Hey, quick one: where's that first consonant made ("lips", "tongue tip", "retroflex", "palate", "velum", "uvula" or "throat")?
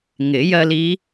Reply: velum